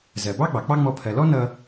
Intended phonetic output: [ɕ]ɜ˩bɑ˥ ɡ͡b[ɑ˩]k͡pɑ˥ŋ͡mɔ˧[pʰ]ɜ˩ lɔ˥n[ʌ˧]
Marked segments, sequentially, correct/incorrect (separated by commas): incorrect, correct, correct, correct